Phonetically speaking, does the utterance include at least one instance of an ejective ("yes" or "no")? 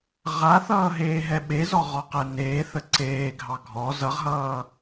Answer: no